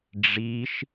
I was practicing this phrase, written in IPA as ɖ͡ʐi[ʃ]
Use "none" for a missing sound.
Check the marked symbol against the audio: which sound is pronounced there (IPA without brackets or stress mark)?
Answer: ʃ